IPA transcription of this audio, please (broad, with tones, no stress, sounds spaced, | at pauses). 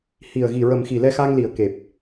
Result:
h i˨˩ ə̯ ɣ i˨˩ ɹ ə˨˩ m x i˨˩ l ɛ˧ x a˧ ŋ l i˨˩ ə̯ k e˨˩ p̚